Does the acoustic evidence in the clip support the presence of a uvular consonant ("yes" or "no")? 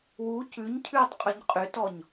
yes